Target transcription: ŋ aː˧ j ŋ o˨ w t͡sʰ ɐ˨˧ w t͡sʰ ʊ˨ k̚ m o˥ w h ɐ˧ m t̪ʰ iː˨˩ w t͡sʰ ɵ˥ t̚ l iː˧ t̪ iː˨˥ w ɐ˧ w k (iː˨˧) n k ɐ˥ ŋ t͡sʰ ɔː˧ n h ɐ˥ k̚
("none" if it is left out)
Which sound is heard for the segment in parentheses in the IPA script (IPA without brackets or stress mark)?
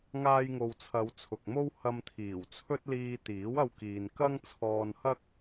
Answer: iː˨